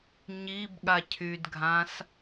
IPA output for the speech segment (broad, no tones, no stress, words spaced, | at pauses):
ɲibɠa cʰydɡʱãs